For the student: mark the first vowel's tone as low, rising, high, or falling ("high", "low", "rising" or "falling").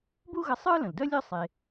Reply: high